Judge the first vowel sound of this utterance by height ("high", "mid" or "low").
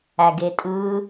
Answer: low